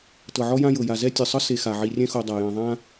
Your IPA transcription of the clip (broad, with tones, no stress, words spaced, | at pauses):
tɤ˩ʕɔ˦ jã˦jɤ˩ja˩zɛ˥ tʲɯ˩sˤɤ˥ se˨xa˩ ʕi˨rʲɛ̃˥xo˨dˤa˩ jɛ̃˨ðˤã˥